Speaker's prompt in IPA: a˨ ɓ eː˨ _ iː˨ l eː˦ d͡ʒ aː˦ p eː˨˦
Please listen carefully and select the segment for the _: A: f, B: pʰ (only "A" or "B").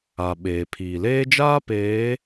B